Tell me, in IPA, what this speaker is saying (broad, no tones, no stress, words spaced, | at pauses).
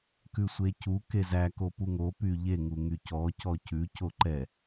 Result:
kʉsʷecu kezæ kopuŋo pyʎe ŋuŋycɔ cɔcʉ coǃɛ